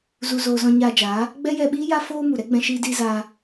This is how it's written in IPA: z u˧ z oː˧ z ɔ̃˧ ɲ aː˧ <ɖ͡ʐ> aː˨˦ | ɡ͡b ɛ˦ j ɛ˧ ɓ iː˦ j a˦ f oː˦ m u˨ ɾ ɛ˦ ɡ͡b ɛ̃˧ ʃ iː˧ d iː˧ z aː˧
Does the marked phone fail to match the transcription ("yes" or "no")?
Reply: yes